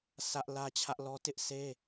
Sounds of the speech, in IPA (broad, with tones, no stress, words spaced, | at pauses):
sä˦ʔ lä˦t͡ɕʰä˦ʔlɔ˦ tɪ˦ʔsʰe˦